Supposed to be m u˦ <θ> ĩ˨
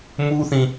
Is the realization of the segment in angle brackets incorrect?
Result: no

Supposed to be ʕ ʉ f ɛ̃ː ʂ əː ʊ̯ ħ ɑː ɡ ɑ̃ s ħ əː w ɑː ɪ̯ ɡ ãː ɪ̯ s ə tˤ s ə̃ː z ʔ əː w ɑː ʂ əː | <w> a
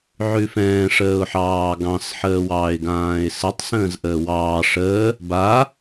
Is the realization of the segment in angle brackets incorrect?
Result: yes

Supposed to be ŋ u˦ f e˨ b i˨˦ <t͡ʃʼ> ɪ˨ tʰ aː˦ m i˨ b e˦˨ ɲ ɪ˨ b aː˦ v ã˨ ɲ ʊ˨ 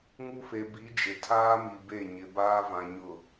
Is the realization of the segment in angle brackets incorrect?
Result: yes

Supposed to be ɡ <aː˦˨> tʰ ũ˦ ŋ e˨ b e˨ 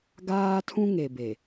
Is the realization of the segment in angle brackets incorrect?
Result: yes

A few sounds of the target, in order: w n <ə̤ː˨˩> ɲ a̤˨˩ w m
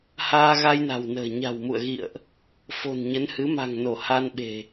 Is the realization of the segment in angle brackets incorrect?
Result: no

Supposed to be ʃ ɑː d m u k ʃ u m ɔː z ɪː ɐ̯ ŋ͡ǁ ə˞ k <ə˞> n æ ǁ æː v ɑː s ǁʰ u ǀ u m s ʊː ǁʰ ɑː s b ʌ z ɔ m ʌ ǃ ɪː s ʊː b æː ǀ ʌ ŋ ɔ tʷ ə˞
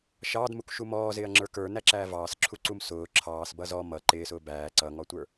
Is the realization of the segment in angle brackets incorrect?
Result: no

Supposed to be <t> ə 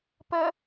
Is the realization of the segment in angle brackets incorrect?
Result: yes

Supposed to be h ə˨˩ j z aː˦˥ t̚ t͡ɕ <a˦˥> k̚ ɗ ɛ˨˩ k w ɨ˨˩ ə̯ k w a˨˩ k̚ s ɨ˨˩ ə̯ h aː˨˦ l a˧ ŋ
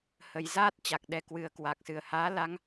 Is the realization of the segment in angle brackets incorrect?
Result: yes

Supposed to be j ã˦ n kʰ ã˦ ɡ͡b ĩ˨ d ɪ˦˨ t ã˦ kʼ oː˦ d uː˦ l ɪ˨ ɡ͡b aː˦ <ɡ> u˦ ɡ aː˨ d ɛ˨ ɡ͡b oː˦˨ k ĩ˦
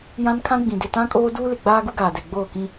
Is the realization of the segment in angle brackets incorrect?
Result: no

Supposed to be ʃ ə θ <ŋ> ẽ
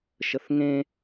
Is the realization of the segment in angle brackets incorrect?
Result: no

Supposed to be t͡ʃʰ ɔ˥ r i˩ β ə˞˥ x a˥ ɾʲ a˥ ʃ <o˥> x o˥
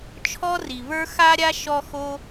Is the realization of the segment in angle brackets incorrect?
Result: yes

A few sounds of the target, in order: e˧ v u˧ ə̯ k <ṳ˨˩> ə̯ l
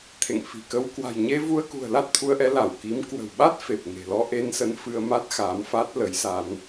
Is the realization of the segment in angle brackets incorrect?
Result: no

